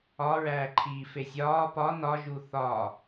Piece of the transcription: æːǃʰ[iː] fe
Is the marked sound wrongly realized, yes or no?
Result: no